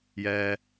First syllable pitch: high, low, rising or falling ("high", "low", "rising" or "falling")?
high